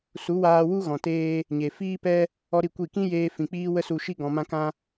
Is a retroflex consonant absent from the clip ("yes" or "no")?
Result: yes